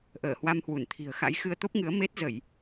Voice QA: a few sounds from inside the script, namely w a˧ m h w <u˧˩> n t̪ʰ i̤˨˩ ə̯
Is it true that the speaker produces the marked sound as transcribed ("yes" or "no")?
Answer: yes